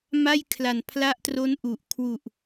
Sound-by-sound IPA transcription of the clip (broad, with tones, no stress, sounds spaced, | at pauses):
m a˥˩ j kʰ l a˨˩ n pʰ l a˦˥ ʔ t r o˦˥ n ʔ u˨˩ ʔ kʰ w u˨˩ ʔ